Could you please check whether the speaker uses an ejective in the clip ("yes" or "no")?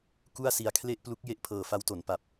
no